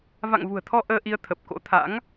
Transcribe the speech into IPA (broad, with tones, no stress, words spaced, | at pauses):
va̰˧˨ŋvṳ˨˩ə̯t̪ʰɔ˧ ʔəː˧ʔi˧ə̯ t̪ʰə˨˩p̚ko̰˧˥t̪ʰa̰˧˥ŋ